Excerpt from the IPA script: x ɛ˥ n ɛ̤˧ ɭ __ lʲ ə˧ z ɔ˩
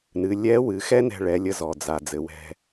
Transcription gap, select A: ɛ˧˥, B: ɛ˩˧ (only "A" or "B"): B